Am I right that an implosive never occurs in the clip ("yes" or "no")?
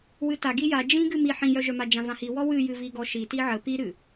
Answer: yes